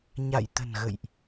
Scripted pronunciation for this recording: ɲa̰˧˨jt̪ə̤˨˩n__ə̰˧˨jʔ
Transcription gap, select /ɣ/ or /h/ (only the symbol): ɣ